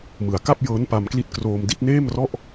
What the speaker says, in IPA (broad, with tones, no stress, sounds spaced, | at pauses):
m ɯ˩˦ a̯ k a˥˩ p̚ j ɤː˦˥ n p a˧ m k l i˦˥ t̚ k r oː˧ m d i˥˩ t̚ n eː˥˩ m r ɔ˥˩ ʔ